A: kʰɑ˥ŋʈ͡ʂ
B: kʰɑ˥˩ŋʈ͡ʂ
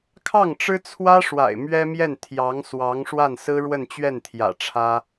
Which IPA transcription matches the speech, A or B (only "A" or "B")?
B